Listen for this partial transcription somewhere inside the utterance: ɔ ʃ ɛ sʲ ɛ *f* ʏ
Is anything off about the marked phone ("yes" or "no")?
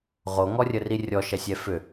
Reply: no